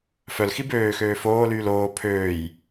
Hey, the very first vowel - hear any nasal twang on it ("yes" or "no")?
no